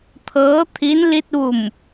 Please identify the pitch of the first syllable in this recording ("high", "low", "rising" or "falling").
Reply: rising